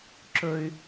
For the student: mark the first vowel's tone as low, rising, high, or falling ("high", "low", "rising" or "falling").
high